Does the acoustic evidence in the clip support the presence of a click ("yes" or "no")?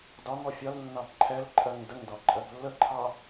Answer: yes